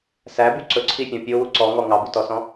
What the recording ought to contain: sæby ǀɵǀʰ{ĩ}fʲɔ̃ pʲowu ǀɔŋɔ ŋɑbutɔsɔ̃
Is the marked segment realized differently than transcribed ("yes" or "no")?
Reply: yes